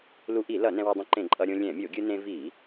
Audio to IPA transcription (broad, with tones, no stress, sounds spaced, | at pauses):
l u˧ ʔ i˧˩˧ l ʌ˧˩˧ n ɛ̃˧ w ʌ˧ dˤ ũ˧ ǃ ẽ˧˩˧ ǃʼ ʌ˧ ɾʲ õ˧ lʲ ɛ̃˧˩˧ mʲ o˧˩˧ ɡʲ ɯ˧ n ẽ˧ v i˧˩˧